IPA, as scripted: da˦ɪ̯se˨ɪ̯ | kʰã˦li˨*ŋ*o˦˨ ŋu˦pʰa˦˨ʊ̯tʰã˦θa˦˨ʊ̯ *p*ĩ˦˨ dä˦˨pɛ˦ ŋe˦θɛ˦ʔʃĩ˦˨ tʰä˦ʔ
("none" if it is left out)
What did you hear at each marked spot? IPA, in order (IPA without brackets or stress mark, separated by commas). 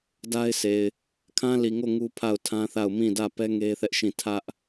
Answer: ŋ, m